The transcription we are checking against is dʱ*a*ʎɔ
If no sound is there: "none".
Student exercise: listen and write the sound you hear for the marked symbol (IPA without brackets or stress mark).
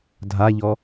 a